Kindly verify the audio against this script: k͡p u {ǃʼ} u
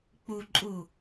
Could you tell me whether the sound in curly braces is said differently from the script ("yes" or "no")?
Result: no